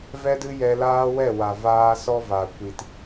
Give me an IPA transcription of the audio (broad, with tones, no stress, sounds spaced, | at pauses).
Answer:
v ɛ˦ d ɨ˦ j ɛ˧ l aː˦ w ɛ˦˨ w a˨ v aː˧ s ɔ˦ v a˨ kʷ i˨ t